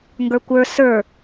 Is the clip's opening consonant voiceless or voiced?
voiced